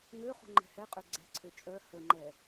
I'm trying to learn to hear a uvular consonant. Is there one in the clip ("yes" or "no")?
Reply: yes